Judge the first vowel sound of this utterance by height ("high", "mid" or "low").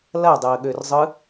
low